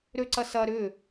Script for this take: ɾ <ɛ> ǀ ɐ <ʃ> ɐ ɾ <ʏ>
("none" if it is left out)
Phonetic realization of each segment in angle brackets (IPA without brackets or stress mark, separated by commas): ø, s, ʏ